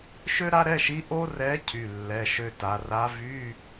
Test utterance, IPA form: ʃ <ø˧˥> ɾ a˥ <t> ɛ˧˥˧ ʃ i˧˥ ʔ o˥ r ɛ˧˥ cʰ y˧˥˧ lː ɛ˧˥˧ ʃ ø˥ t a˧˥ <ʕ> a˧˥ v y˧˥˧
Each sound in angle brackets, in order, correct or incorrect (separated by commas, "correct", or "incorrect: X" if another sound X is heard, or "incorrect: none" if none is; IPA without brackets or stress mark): incorrect: ø˥, incorrect: ɾ, incorrect: r